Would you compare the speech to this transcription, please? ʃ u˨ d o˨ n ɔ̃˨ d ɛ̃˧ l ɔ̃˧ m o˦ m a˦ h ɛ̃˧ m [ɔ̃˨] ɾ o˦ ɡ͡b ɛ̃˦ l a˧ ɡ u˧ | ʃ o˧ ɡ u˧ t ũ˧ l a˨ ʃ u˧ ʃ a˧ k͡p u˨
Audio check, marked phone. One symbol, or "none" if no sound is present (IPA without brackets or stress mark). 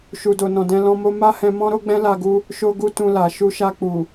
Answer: ɔ̃˦